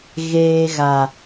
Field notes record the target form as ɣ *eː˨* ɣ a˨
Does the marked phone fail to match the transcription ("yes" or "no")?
no